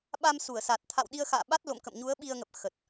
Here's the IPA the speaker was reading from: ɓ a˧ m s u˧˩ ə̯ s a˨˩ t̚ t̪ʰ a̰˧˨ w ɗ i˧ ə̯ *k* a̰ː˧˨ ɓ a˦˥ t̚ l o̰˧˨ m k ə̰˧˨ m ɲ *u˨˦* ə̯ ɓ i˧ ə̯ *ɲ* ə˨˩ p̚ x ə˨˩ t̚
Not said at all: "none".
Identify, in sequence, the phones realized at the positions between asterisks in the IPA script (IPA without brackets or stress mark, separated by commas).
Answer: x, u˨˦, ŋ